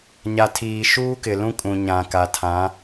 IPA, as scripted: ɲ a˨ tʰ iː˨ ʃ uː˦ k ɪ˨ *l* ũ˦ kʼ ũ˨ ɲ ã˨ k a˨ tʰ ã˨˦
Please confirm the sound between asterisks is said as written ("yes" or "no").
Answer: yes